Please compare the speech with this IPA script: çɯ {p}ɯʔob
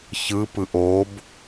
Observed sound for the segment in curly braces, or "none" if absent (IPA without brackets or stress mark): p